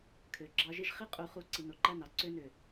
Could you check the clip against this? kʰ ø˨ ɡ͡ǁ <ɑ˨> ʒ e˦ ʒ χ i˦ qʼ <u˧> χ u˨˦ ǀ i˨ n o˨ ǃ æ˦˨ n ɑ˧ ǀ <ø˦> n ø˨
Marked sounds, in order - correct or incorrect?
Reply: incorrect, incorrect, correct

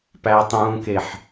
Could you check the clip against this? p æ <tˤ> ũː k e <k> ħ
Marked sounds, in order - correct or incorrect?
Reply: correct, incorrect

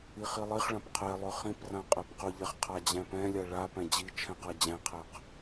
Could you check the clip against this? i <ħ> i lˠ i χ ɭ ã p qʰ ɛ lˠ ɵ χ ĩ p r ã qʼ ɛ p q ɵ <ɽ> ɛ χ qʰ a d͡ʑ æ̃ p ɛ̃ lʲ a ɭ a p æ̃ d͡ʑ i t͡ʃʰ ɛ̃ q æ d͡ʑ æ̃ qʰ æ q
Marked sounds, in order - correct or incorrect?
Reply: incorrect, incorrect

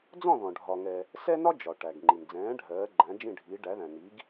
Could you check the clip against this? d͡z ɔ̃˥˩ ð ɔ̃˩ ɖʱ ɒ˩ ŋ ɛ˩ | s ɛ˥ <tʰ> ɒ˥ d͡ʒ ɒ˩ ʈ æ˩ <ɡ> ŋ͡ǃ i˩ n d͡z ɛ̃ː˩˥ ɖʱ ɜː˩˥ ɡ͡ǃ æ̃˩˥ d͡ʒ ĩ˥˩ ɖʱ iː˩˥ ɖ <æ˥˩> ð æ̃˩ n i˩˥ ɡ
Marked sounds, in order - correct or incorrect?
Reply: incorrect, correct, incorrect

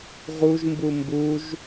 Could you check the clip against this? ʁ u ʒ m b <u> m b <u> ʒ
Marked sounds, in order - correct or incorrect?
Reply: correct, correct

